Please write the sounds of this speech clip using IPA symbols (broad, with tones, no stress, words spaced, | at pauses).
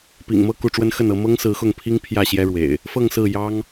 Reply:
pḭ˨˩ŋmɤ˥˨ ku˥˨ʈ͡ʂwə˦n xə˥˨nɤ˨˦ mɤ˦ŋsɹ̩˨˦xʊ˥˨ŋpʰi˦ŋ pʰjä˥˨ɕjɛ˦ɻwḛ˨˩ɪ̯ | fɤ˥˨ŋsɹ̩˥˨ jɑ˦ŋ